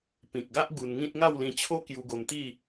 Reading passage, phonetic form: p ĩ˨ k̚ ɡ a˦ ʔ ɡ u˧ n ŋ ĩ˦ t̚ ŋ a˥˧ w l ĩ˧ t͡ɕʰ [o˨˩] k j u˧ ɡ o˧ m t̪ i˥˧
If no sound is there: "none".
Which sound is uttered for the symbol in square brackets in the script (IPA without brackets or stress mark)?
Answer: o˦